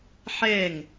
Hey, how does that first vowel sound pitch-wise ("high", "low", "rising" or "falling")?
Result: falling